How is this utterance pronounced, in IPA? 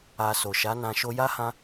a˨ so˨ʃa˨˦nã˧ ʃo˧ja˦hã˧

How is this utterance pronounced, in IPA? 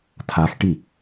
tʰaxʈi

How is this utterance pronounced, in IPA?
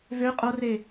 vø qʼore

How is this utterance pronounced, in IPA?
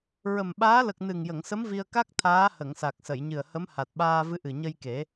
ɹə˨˩mɓaː˧˥ lə˨˩k̚ nɨ˨˩ŋjə˨˩˨ŋsə˧˥m vi˧ə̯ ka˦˥k̚ t̪ʰaː˧˥hə˨˩˨ŋsa˨˩k̚sə˨˩˨j ɲɨ˨˩ə̯hə˧˥m ha˨˩t̚ɓaː˧ vɨ˧˥ʔɨ˨˩ɲə˧jke˨˩˦

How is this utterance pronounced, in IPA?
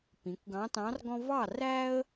pĩ˩˧kʷɡɑ̃˧˥tɑ̃˧˥rɡɔ̃˥ vɑ˥˨ ræ˥ə̯

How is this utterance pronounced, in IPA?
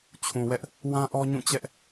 t͡ɕʰũ˨wɛ˦ʔ | wã˦ʔɔ˦ɲũ˦˨t͡ɕɛ˦ʔ

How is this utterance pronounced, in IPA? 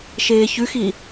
ʃeːçʉxi

